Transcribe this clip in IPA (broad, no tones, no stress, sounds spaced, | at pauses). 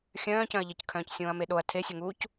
xʲ œ̃ː c œ̃ ɐ̯ ʎ e c kʰ œ̃ː c sʲ õː ɐ̯ m e ɗ o ɐ̯ tʰ e sʲ ɵ ŋ uː c